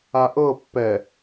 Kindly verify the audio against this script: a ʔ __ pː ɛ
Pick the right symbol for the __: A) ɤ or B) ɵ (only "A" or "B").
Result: A